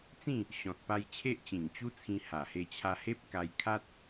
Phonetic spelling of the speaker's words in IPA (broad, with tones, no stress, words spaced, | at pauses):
t͡sĩ˥˧ | ɕɔ̃˨t̚pa˧j t͡ɕʰe˦ʔt͡ɕĩ˨˩ŋt͡ɕu˦t͡sʰĩ˧ ha˨˩he˧t͡ɕʰa˧he˦p̚ ka˧j kʰa˦t̚